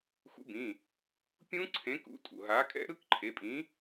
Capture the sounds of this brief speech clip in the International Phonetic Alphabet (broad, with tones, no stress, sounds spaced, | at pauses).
x ṵ˨˥ b ĩ˩˧˩ | pʲ ũ˦˥ ǀʰ ẽː˨˥ k ṵ˨˥ tʼ ṵ˩ ɦ aː˨˥ kʼ ɛ̰˦˥ ɾ ɯ˦˥ k ǃʰ e˩˧˩ pʼ ĩ˨˥